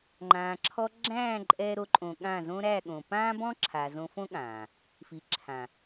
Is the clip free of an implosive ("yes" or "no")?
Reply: no